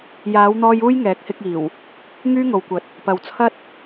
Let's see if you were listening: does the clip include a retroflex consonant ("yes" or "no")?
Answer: no